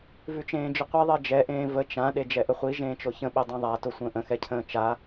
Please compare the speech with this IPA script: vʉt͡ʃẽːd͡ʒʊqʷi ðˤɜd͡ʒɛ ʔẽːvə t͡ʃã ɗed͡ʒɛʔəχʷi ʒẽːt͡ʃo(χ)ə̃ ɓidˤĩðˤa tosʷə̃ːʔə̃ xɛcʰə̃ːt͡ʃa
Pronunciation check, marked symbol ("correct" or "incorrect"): incorrect